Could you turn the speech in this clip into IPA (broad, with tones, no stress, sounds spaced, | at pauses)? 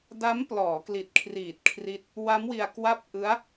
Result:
d a˦˥ m p l ɔː˩˦ k l i˨˩ t̚ kʰ r iː˨˩ t̚ kʰ r i˦˥ t̚ | w a˦˥ m w i˧ a̯ k w a˥˩ p̚ ʔ ɯ˦˥ a̯